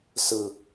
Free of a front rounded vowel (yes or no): yes